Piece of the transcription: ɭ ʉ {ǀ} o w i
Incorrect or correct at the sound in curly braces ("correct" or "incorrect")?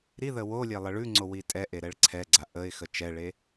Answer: incorrect